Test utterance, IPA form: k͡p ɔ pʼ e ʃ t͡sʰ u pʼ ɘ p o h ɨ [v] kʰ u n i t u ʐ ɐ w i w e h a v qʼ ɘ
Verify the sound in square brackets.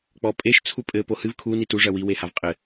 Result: correct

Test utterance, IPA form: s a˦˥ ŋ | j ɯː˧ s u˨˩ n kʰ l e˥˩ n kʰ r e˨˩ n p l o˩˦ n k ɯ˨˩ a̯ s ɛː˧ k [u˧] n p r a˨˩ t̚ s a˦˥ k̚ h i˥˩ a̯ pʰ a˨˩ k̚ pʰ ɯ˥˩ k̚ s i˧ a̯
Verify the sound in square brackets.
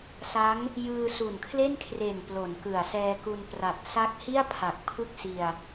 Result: correct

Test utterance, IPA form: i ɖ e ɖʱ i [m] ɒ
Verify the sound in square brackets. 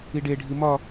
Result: correct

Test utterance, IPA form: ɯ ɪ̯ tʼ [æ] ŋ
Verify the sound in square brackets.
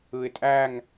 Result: correct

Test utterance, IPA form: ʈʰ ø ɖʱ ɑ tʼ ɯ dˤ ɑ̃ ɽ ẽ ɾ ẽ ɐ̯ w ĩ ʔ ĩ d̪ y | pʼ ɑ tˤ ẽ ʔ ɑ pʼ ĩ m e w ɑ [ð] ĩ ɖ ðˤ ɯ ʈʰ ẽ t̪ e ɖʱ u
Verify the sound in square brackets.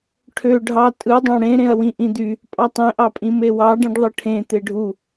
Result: incorrect: ɖ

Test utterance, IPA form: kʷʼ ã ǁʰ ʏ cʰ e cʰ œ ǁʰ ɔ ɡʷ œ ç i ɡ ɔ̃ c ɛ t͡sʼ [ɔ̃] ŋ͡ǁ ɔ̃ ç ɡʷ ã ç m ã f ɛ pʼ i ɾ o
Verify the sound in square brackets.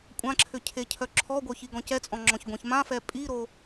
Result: correct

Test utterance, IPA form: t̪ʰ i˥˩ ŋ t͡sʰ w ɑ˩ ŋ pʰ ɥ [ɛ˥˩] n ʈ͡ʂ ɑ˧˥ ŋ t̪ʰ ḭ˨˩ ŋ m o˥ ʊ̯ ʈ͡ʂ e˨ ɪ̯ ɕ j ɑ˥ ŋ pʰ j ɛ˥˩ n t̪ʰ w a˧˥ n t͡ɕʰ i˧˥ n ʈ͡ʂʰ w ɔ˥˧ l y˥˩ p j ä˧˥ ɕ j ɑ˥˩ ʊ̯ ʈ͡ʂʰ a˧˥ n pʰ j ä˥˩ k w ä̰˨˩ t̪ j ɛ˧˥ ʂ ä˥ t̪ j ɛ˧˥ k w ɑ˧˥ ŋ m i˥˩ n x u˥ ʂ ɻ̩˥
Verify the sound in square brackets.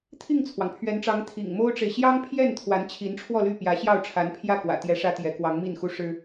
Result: incorrect: ɛ˧˥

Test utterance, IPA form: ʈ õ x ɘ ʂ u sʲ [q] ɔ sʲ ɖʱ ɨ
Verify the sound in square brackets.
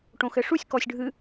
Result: incorrect: k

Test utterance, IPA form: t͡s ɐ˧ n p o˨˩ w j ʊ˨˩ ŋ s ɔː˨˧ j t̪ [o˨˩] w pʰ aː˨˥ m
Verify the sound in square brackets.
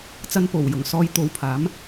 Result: incorrect: o˨˧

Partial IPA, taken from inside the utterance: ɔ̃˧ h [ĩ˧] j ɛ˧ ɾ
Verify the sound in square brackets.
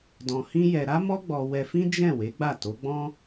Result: incorrect: ĩ˦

